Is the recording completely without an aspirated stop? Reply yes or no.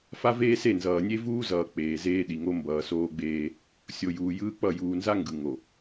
yes